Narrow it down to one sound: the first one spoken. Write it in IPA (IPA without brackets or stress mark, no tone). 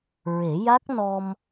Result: ɹ